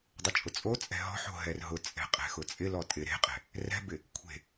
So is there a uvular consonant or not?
yes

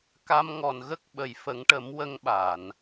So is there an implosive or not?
yes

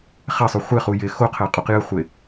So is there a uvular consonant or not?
yes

